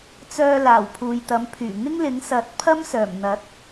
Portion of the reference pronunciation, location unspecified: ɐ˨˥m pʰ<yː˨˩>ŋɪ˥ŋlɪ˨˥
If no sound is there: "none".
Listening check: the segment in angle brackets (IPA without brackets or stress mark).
yː˨˩